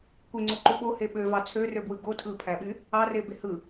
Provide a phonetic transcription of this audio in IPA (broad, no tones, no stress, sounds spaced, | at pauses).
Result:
kʷ e ŋ͡ǀ o ǃ u ɓ o h e ɓ ø v ɑ t͡sʰ ø r ø b w ɯ ɡ o tʰ ɯ pʰ æ ɓ y | ɑ r e b e h ɯ